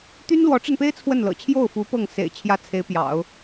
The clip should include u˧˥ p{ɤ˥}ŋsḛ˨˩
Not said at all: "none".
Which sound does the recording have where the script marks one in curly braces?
ɤ˥˩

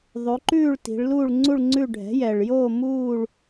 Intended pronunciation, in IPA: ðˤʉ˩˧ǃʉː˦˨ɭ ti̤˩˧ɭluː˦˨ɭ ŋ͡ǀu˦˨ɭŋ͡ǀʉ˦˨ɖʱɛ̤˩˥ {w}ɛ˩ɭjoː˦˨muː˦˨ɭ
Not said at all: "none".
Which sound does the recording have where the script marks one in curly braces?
j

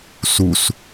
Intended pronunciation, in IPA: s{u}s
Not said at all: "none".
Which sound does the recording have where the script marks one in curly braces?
u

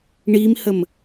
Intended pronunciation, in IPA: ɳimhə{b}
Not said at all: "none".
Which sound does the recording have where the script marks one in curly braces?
m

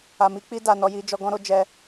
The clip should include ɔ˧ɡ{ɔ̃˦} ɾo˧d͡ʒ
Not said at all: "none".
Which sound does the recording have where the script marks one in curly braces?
ɔ̃˦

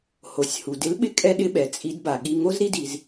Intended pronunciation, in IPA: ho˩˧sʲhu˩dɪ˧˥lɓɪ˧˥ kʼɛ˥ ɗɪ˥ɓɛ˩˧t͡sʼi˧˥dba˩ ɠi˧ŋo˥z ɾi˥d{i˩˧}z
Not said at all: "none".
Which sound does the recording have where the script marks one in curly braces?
i˩˧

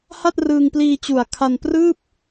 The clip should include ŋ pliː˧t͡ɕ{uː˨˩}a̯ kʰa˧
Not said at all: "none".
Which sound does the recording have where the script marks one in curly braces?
u˨˩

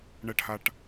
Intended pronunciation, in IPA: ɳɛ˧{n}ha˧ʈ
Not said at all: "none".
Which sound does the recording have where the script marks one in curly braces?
ʈ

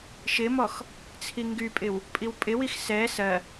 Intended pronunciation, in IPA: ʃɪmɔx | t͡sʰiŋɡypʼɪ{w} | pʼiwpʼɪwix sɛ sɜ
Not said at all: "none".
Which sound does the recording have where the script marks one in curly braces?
w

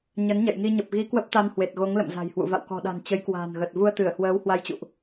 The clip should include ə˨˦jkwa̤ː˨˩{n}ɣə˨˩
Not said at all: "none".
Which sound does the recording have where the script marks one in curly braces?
n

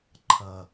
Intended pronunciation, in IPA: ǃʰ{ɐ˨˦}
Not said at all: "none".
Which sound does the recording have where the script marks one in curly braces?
ɐ˨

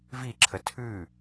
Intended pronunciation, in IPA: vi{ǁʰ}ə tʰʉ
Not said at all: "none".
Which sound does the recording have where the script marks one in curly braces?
ǁʰ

